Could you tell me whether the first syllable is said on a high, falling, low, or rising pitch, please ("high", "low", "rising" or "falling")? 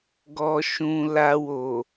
low